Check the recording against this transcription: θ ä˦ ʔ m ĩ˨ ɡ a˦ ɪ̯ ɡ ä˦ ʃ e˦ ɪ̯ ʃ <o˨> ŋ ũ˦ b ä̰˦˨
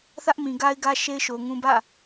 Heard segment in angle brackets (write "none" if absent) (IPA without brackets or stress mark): o˨